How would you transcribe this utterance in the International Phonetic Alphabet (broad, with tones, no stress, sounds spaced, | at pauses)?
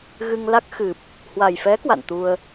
ɣ ɨ˧ ŋ l a˦˥ k̚ x ɨ˨˩ p̚ | h w a˨˩ j f ɛ˨˦ k w a̰˧˨ n t̪ u˧ ə̯